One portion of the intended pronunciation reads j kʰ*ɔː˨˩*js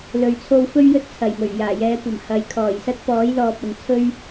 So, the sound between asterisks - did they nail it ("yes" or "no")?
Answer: yes